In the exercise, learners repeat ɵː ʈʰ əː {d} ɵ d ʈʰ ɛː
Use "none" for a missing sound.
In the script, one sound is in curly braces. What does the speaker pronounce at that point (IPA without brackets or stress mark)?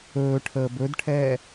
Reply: b